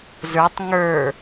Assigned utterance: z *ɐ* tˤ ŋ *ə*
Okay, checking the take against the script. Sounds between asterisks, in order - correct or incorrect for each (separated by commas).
incorrect, incorrect